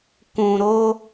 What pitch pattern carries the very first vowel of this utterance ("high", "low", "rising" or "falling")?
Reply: low